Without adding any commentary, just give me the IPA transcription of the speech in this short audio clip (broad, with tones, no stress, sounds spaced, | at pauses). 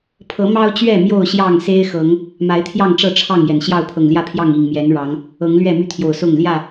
pʰ ɤ˨˦ m ɑ˦ ʊ̯ t͡ɕ ɥ ɛ˥˨ m j o˥˨ ʊ̯ ɕ j ɑ˥˨ ŋ s e˦ ɪ̯ x ɤ˨˦ ŋ | m a˨˦ ɪ̯ t̪ʰ j ɑ˥˨ ŋ ʈ͡ʂ ɤ˥˨ ʈ͡ʂʰ ɑ˥˨ ŋ j ɛ˩ n ɕ j ɑ˥˨ ʊ̯ pʰ ɤ˨˩ ŋ l j ä˥˨ pʰ j ɑ˥˨ ŋ i˨˩ ŋ m j ɛ˨˦ n ɻ ɑ˨˦ ŋ | ɤ˨˦ ŋ l ɥ ɛ˥˨ m y˦ t̪ʰ j o˨˩ ʊ̯ s ʊ˥˨ ŋ l j ä˥˨